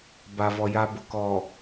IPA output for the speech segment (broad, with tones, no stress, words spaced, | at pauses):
ba˨vɔ˨ ja˨bʊ˨kɔ˨